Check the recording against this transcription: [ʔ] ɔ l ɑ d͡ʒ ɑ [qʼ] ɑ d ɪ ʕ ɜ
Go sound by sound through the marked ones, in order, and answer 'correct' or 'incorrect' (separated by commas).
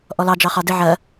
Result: correct, incorrect